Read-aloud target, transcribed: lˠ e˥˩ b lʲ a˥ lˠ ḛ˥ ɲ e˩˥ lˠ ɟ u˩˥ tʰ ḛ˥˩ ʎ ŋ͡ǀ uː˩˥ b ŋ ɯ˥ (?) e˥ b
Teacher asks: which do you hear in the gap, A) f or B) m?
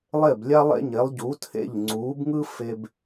A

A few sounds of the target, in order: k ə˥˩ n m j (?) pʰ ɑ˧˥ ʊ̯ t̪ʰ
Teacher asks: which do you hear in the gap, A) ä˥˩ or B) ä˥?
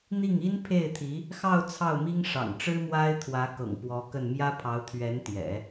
B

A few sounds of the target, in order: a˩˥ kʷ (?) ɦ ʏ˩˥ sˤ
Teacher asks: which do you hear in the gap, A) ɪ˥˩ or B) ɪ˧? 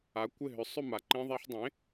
A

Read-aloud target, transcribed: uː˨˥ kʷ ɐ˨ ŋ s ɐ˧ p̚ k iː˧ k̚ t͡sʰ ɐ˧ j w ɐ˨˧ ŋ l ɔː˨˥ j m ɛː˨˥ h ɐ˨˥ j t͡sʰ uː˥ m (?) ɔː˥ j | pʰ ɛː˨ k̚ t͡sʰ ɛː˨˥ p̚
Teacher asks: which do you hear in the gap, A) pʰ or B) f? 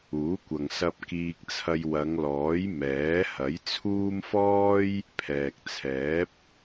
B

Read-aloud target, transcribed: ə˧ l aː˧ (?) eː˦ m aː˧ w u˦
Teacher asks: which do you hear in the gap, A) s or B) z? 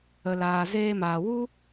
B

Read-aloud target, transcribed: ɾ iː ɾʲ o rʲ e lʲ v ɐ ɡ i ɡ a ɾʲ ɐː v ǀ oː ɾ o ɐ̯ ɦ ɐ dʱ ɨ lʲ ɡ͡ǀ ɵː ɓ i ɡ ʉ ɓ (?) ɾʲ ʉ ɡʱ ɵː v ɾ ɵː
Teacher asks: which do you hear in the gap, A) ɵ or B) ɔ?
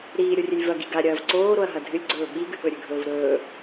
A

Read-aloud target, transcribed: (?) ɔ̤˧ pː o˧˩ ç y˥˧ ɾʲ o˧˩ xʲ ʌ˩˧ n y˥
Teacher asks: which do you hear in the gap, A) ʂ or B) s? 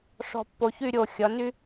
A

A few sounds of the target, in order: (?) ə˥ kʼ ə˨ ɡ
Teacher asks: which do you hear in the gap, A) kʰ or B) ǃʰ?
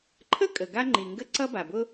B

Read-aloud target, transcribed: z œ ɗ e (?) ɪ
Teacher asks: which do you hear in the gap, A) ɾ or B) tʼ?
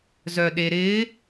A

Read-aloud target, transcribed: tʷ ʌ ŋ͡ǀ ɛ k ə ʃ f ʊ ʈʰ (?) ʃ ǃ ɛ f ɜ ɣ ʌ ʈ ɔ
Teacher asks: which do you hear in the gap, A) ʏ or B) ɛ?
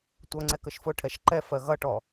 B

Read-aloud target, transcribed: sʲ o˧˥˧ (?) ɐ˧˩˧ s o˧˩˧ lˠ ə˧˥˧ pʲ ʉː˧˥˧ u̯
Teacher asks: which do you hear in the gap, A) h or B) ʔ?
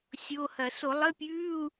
A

